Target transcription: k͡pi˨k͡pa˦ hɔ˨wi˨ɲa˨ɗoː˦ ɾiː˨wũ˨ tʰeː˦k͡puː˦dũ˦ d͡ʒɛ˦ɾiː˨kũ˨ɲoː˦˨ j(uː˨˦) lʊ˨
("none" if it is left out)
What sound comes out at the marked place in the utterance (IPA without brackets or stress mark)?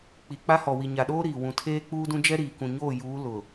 uː˨˦